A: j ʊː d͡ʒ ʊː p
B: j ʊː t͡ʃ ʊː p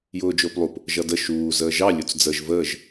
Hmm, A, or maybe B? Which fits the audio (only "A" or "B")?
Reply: A